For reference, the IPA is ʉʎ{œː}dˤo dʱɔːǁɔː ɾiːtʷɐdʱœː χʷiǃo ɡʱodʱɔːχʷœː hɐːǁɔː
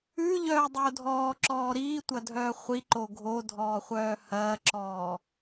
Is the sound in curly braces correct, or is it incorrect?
correct